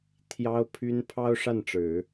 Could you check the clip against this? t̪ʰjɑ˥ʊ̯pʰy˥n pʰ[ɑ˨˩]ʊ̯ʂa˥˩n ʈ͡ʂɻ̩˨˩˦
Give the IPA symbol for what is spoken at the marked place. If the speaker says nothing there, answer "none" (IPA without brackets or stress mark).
ɑ˥